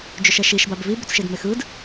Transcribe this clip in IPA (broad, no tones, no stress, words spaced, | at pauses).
d͡ʒʏʃɛʃiʃbab vibʏt͡sʃed mexɯd